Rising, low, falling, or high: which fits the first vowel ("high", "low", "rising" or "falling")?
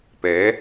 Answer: rising